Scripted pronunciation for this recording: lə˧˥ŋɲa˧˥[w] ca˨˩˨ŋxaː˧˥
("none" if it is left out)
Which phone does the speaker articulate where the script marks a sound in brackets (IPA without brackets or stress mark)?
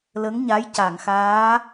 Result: j